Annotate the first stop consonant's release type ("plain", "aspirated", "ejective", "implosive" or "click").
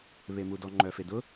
plain